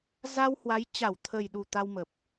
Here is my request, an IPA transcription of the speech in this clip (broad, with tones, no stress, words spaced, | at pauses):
za˧whwa˨˦j t͡ɕa˧˩wt̪ʰə˨˩jɗu˧˩ t̪a˧wmə˨˩p̚